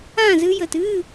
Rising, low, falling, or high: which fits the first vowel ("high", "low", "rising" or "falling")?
falling